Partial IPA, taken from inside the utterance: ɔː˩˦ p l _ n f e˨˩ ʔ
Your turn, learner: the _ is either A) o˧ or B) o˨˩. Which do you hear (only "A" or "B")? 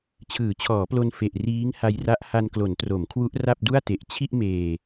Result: A